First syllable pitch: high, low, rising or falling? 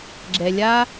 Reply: low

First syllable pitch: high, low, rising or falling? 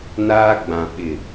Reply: high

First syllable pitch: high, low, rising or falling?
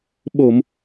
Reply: low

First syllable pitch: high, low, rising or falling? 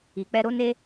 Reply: low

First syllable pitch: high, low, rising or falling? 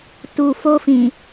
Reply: low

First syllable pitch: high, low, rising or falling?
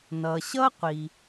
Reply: low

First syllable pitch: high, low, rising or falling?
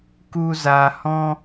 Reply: high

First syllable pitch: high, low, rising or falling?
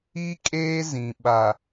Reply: high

